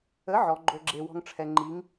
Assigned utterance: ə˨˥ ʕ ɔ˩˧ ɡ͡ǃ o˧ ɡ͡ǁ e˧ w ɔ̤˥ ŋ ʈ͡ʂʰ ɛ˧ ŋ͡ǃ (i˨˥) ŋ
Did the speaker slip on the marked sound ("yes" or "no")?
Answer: no